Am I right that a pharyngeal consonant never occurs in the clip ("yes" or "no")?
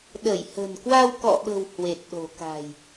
yes